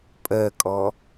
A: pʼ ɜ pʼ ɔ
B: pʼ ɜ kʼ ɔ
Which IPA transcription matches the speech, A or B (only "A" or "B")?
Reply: B